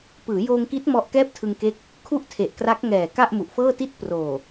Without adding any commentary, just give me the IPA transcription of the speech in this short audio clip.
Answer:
pɯː˩˦joː˧ŋki˦˥t̚ mɔ˦˥ʔkɛː˥˩p̚tʰɯ˧ŋke˦˥k̚ | kʰu˥˩ʔtʰe˨˩ʔkra˦˥k̚ŋɛː˨˩ ka˥˩ʔmu˨˩ʔfɤː˥˩ti˥˩t̚ proː˨˩

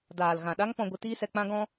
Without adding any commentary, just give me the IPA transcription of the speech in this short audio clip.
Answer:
daː˨l ɣã˨ɗa˦ŋpɔ̃˧ ɡʷɨ˧tiː˦sɛ˧k͡pã˦ ɡɔ̃˦

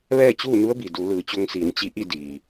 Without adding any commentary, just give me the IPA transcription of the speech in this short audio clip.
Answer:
ʋɛː˥˨t͡ɕuː˥˨nu˧˥ə̯bi˩ du˩˧lɯː˩˧t͡ɕo˧ŋsiː˩˧n t͡ɕi˧˥ʔi˥˨ diː˩

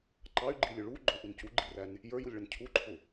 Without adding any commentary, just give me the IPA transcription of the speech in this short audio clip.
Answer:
ǃɑy̯ɡ͡ǃilʲʊ ɭu ɡ͡ǃʊʔun cuɡ͡ǃiræn | jə˞julʲɭʌn cʰuǃʰʊ

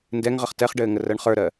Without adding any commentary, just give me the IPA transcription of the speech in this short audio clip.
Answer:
ndɛŋʁəχ tɛχɖɘːŋərɜɳ χə˞ɾɜ

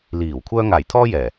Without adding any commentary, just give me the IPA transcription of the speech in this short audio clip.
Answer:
liː˨˩w kʷʰœː˧ŋaː˨˩j t̪ʰɔː˥jɛː˨˩

